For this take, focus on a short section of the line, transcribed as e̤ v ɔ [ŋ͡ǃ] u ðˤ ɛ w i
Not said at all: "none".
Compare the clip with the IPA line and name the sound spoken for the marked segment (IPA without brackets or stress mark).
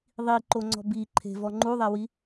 ŋ͡ǃ